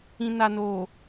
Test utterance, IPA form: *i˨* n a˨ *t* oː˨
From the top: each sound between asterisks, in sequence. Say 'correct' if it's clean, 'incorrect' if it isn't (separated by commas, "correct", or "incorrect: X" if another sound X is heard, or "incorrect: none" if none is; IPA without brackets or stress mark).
incorrect: ĩ˨, incorrect: n